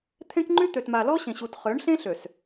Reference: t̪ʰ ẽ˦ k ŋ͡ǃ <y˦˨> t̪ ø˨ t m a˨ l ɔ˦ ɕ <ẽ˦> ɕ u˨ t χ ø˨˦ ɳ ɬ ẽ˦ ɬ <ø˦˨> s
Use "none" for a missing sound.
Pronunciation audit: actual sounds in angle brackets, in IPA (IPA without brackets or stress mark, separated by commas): y˦, ẽ˨, ø˨